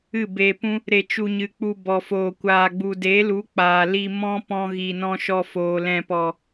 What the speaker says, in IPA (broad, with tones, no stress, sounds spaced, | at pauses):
ɨ˦˨ b eː˧ p ũ˦ | ɾ e˧ t͡ʃ u˧ ɲ ɨ˨˦ k͡p u˧ b ɔ˧ f oː˧ kʷ aː˨ ɡ͡b u˨ d e˨˦ l u˨˦ k͡p aː˨ l i˧ m ɔ̃˦ p ɔ̃˧ ɣ i˨ n ɔ̃˧ ʃ ɔ˧ f oː˨ l ɛ̃˨ p ɔ˨